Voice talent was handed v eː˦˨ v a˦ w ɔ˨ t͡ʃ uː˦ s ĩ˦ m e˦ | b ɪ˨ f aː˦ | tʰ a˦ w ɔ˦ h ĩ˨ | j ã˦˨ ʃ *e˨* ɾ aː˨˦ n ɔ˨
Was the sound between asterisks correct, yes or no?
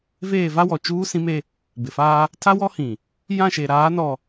yes